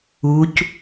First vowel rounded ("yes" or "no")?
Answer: yes